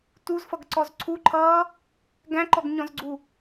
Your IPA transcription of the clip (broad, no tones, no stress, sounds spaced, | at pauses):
t u z f ʌ ɡ ǀ ɔ z ǀʰ u ǃʰ ʌː | ɡ æ̃ ǃ ɔ ɡ ɲ ɔ̃ z ɡ͡ǀ u